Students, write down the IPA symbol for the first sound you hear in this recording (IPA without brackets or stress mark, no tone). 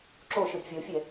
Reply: ǁ